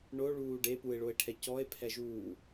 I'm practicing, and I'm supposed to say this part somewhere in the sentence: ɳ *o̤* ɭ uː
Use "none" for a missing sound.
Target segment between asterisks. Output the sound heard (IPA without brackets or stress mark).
o